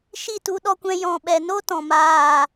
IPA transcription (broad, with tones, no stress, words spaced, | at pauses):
ʃi˦˨tu˧ɗɔ˧kʷɛ̃˧ jɔ̃˨ɓɛ˨no˦ tɔ̃˨maː˦˨